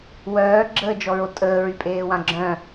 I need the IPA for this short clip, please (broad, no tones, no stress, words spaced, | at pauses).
wœːɡ͡ǁəːd͡ʒɔɹo tʼəːɹypʼeːwã ɡ͡ǁœ̃